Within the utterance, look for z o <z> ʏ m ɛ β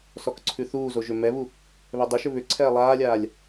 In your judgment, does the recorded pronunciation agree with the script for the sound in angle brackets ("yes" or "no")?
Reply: no